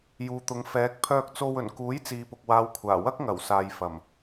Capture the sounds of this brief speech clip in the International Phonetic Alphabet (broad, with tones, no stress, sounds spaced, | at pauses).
j uː˨ t̪ ʊ˨˧ ŋ f ɛː˨˥ k̚ pʰ œː˧ k̚ t͡s o˧ w ɵ˨˩ n k uː˨˥ j t͡s iː˨ p ʊ˨ k̚ w aː˨˧ w kʷʰ aː˨˩ w ɐ˥ k̚ ŋ ɐ˨˩ w s aː˨ j f ɐ˨˩ m